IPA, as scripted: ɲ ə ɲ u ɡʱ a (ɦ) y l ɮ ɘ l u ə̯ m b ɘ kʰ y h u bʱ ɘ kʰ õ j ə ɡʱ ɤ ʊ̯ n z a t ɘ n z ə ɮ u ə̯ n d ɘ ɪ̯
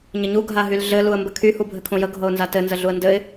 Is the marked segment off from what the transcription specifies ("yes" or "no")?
no